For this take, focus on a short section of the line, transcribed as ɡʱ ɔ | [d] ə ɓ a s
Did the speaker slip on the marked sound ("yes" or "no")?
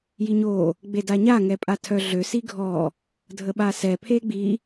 yes